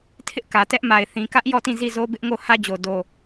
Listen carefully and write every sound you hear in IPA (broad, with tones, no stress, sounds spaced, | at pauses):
tʰ ɪ˦ ʔ k ä˨ t ɛ˦ ʔ m a˨ ɪ̯ θ ĩ˨ k ä˦ ʔ j ɔ˦˨ t ĩ˦˨ z i˦˨ z o˦ b ɪ˦ ʔ ŋ o˦˨ h ä˦ d͡ʑ o˨ d o˨